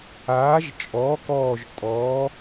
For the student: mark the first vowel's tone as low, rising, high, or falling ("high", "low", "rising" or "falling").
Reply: rising